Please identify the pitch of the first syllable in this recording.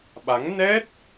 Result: rising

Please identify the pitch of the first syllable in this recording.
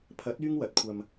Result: rising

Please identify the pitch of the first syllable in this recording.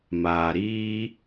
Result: low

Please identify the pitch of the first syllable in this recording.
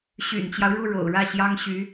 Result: low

